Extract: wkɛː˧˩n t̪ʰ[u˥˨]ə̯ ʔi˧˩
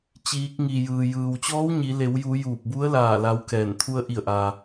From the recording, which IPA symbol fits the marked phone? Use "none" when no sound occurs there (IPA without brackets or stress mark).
u˧